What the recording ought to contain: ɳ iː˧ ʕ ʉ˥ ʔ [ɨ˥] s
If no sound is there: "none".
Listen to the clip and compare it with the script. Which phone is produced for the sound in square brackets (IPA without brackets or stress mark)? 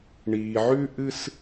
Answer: ɨ˥